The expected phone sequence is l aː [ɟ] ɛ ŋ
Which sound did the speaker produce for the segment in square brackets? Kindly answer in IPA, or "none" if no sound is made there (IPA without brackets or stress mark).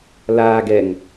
ɡ